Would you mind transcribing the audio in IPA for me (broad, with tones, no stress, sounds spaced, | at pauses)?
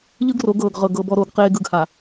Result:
ʎ ɯ˦ ɡ r o˨˦ ɡ ɤː˨ ɡ ʁ ɤ˨ ɡ ɤ˨ b ɔ˨ ɾ oː˨ ɡ q eː˨ ɡ ɯ˨ ɡ h a˨